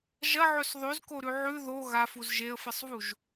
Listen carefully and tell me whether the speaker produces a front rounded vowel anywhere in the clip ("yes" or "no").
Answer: no